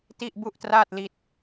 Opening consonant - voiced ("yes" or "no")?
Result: no